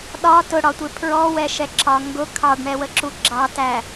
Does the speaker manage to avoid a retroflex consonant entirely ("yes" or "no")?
no